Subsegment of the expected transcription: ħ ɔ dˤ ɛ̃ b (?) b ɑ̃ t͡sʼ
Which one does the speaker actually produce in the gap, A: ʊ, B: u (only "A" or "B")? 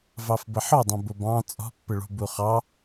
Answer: A